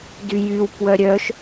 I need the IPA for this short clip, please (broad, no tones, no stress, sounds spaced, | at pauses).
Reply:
d y j y w p w œ ɾʲ œ ʃ